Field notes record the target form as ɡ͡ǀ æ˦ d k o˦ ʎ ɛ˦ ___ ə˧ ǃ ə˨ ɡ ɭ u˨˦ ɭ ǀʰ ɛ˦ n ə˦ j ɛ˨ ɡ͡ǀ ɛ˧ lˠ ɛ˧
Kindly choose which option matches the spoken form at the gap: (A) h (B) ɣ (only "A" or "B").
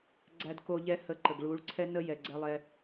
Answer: A